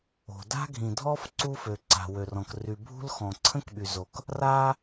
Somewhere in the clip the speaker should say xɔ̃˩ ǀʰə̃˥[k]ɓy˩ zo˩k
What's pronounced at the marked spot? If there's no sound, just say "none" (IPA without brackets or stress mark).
k